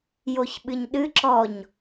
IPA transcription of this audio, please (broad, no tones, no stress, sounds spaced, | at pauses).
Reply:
j o ç ɓ ɨ ɲ ɗ ɨ ǁ ɔ ɲ